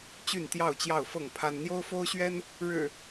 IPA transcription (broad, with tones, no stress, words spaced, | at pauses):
t͡ɕy˥˨nt̪jɑ˥˨ʊ̯t͡ɕjɑ˥˨ʊ̯fɤ˥˨ŋ pʰa˦n n̪jo˦ʊ̯fo˦ʊ̯ɕɥɛ˦n | ɻɻ̩˨˩